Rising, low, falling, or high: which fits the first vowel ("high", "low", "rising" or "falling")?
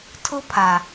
high